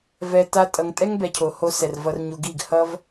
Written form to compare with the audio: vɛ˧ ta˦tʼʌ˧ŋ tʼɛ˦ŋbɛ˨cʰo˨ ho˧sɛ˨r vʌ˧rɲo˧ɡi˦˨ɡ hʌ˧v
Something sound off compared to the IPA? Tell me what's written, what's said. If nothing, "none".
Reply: none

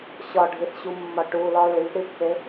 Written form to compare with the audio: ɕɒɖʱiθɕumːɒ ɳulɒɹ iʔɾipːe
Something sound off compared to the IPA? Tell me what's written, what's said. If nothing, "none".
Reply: ɳ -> ʈ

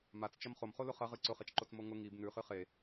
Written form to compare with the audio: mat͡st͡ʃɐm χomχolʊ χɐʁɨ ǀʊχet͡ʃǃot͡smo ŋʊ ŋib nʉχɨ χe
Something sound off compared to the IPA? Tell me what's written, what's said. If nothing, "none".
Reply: none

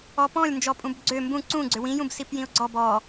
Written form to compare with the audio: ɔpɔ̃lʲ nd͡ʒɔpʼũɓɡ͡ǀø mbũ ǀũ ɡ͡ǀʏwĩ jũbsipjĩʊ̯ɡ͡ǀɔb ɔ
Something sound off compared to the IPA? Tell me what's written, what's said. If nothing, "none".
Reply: ɓ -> b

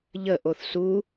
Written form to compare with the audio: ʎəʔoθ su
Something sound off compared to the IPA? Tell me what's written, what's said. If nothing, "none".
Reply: none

